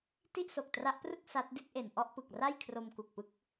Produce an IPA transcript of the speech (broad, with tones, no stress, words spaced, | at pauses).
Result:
ti˥˩ʔso˨˩k̚tra˦˥ʔprɯ˥˩k̚ sa˦˥t̚ di˥˩t̚ʔe˨˩n ʔɔ˥˩ʔpɯ˨˩k̚ra˥˩jkʰro˧m ku˨˩k̚pɯ˦˥k̚